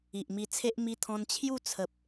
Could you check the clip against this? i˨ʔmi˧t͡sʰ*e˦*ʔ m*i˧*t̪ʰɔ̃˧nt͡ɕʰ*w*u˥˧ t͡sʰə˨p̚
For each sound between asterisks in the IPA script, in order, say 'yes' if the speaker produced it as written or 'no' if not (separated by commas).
yes, yes, no